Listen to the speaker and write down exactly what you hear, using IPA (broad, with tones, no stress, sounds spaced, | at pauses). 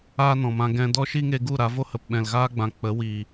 aː˦ n ɔ̃˨ m ã˧ ɡ ɛ̃˦ d ɔ˦ ʃ i˦ ŋ e˧ ɡ u˦˨ ɾ a˨˦ v o˦ h ə˨ p ɓ ɛ̃˨ l ɣ aː˦ ɡ͡b ã˨ k͡p ə˨˦ w iː˨